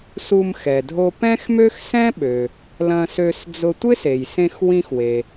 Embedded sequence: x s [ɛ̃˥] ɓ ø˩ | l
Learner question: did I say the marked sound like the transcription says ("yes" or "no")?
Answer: yes